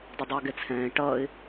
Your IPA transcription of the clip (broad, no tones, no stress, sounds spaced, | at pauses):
dˤ ɪ dˤ ʊ ə̯ ɡ ɛ t͡sʰ ɛ̃ː ɪ̯ ʈ ʌː ɪ̯